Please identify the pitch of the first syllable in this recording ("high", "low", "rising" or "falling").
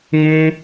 high